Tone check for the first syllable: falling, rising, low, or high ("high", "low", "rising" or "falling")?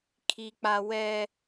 high